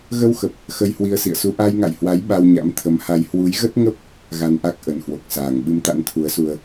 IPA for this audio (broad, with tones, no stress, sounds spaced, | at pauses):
ɣ ə˧ w x ə˨˩ p̚ | x ə˧ j h w i˧ ə̯ s ḭ˧˨ ə̯ s u˧ ʔ a˧ j ŋ a̰˧˨ j h w a˨˦ j ɓ a˧ w ɲ a̰˧˥ m t̪ʰ ə˨˦ m h a˧ j h w u˨˦ j ɣ ə˦˥ t̚ ŋ ə˦˥ p̚ | ɣ a˧ n ʔ a˦˥ k̚ ʔ ə˨˩ n h w o˨˩ k̚ s aː˨˩ ŋ ɓ ɨ˨˦ m t̪ a̰˧˥ n t̪ʰ u˨˦ ə̯ s u˧ ə̯